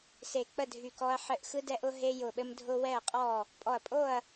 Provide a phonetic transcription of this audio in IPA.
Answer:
s e˧˩ k͡p ə˥˨ dʱ y˧˩ k ɔ˦ ɐ̯ ħ ɘ˦ ʔ x ɯ˦ d ɛ˦ ʔ ʊ˦ ɦ e˦ j ʊ˧˩ ɓ ɘ˦ m dʱ ʊ˦ w ɛ˥˨ ɐ̯ qʼ ɔ˥˨ | pʼ ɔ˧˩ ɐ̯ pʼ o˥˨ ɐ̯

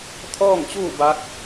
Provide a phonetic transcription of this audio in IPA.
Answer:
t̪ʰ ɔː˥˨ ŋ t͡ɕ uː˥˨ b a˧˥ k̚

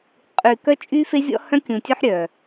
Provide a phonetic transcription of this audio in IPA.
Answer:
qʼ y˨ k œ˦ t͡ʃʼ y˦ f e˦ zʲ ɔ̰˦ h œ̃˦ kʲ ũ˨ tʲ œ˦ ħ ɾʲ œ˨

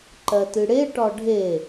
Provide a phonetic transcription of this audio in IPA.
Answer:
ǃ ɜ t ɨ ɽ e ʈ ɒ ɖʱ e

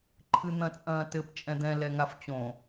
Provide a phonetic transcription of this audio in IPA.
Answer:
ǃʰ ɨ n̪ ɐ̃ t͡sʼ ɐ̃ː t ɘ p t͡ʃʼ ɛ̃ d̪ ɛ̃ l ɛ ŋ a f t͡ɕ õ

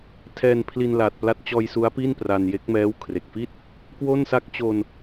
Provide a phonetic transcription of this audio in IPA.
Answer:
tʰ ɛː˧ n pʰ l i˧ n l aː˨˩ t̚ p l a˦˥ t̚ t͡ɕ ɔː˧ j s u˦˥ a̯ p i˥˩ n p r a˧ n j e˦˥ k̚ m ɛː˦˥ w kʰ r e˨˩ k̚ f i˥˩ t̚ | k w o˥˩ n s a˥˩ k̚ t͡ɕ o˧ n

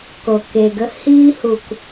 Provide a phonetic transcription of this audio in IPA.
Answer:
k o˨ k e˨ ɡ ə˦ h iː˦ h u˨ k

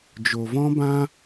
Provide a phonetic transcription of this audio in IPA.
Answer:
d͡ʒ o˨ v ɔ̃˦ b ã˦

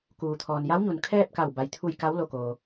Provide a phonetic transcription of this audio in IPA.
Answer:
k uː˩ t̪ʰ ɔː˩ n j a˧˥ w ɲ u˩ n kʰ ɛː˥˨ p̚ k a˧˩ w b a˩ j t̪ʰ u˧˩ j k a˧˥ w l o˧˩ k oː˩

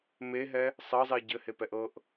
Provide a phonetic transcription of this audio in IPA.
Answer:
m e ɦ ɛ | sˤ ɤ zˤ i ɟ ɘ h e p ɛ ʔ ɤ ʔ

